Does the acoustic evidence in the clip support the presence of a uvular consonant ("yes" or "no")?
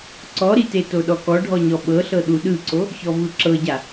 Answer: no